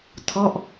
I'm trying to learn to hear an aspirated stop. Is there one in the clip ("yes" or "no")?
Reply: yes